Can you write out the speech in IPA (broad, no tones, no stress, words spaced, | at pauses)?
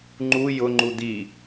ŋ͡ǃu jʊŋ͡ǃu d̪i